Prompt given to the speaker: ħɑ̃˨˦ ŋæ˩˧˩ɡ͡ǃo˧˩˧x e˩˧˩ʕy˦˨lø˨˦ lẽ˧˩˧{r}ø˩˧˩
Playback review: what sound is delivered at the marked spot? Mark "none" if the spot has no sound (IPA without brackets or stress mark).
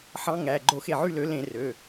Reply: r